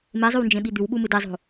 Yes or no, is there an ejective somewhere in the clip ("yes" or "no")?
no